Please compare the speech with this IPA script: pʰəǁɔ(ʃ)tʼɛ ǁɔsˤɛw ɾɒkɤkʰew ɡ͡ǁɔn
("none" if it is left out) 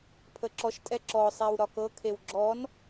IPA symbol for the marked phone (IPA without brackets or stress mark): ʃ